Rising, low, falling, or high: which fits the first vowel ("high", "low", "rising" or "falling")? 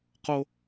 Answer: high